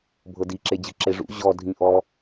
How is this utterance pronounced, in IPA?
bʱ ɤ d i ǁ e d͡ʑ ɯ ǁ e ʐ ṵ ʑ ɔ dʱ ĩ ʔ ɔ

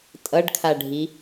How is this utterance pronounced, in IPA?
tʼ ʌ ɖ kʰ a ɖʱ i

